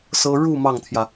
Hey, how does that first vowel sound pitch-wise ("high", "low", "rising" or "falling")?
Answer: high